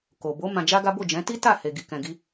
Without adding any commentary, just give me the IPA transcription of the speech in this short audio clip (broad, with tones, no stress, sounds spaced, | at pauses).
k o˨ b o˨˦ m ã˧ d͡ʒ a˦ ɡ a˦ b o˦˨ d͡ʒ ɛ̃˨˦ t i˦ t a˦˨ h e˨ ɡ i˨ k ɛ̃˨ ɡ i˧